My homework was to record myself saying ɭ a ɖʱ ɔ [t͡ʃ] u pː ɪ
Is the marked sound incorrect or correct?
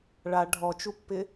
correct